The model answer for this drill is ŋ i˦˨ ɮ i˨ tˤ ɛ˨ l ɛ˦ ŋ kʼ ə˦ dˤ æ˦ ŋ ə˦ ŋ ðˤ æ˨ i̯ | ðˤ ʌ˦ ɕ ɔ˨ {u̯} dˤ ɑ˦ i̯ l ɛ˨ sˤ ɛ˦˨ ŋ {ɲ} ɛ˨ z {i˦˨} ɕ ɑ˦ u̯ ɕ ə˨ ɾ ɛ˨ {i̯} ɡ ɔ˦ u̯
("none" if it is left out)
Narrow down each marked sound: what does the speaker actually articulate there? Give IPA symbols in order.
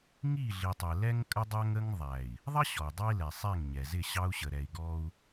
i̯, ɲ, ɪ˦˨, i̯

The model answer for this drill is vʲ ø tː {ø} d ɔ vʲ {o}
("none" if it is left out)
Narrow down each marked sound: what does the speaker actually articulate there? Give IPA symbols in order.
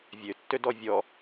ø, ɔ

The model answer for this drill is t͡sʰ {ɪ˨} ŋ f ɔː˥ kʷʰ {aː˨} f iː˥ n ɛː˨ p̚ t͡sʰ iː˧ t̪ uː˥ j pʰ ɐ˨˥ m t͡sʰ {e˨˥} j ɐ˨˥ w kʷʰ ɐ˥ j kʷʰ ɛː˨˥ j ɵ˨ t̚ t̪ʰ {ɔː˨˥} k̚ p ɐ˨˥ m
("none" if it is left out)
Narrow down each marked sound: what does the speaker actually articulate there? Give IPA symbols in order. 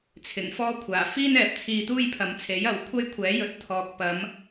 ɪ˨˩, aː˨˩, e˨˥, ɔː˨

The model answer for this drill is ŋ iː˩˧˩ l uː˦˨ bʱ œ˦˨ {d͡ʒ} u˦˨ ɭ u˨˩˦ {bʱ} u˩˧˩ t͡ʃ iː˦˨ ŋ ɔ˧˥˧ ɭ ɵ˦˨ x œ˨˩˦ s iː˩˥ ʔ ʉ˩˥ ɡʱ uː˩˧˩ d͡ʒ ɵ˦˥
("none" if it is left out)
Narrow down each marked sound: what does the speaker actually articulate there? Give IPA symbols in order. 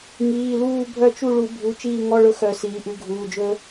t͡ʃ, bʱ

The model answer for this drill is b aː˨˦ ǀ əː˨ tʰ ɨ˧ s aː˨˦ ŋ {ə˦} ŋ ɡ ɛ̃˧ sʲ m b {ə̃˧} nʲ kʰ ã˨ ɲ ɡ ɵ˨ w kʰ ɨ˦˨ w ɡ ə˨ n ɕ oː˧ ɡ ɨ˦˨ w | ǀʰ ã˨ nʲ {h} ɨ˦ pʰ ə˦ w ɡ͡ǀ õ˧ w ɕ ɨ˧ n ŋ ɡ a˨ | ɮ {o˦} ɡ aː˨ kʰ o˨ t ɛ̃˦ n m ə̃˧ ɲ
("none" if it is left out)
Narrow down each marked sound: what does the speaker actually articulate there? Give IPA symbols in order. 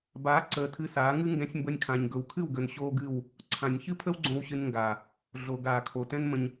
ɨ˦, ə˧, ç, o˨

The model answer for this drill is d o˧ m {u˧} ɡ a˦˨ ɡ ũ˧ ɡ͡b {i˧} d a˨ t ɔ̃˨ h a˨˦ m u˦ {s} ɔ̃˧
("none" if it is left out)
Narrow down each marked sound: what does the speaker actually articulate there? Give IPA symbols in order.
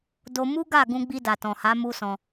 u˦, i˧, s

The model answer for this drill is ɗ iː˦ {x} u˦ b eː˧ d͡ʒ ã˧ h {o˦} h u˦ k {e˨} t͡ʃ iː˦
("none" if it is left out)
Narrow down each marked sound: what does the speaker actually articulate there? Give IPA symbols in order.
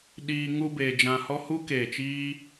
ŋ, ɔ˦, eː˨

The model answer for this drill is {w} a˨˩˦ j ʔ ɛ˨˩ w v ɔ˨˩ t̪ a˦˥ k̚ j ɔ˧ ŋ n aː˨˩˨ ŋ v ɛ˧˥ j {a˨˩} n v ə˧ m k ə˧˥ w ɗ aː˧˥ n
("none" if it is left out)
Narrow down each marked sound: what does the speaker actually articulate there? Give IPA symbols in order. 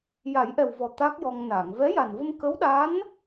j, a˨˩

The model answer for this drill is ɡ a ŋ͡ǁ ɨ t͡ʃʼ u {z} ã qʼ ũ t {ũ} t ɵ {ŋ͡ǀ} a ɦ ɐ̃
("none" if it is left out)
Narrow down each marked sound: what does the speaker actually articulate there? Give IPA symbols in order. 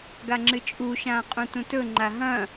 ʃ, ũ, ŋ͡ǃ

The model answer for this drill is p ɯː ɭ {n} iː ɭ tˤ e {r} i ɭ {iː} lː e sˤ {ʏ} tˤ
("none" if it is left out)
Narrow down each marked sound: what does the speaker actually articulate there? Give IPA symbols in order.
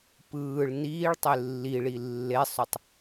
n, lː, i, ʏ

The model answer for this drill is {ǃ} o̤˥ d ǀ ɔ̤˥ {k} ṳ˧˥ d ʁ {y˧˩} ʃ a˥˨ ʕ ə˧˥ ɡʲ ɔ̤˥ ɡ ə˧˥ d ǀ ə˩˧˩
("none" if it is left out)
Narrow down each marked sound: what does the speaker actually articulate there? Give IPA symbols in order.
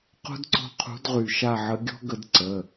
q, qʰ, y˧˩

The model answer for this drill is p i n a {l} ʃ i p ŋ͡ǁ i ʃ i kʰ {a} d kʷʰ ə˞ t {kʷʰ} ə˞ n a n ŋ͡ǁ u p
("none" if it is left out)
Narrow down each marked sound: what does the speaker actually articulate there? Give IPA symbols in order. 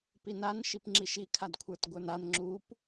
n, a, ɡʷ

